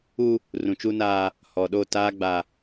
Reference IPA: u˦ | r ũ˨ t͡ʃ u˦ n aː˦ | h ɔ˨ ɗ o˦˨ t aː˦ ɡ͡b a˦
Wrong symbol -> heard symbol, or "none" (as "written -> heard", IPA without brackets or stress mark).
none